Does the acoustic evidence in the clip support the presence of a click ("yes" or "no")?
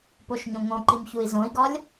yes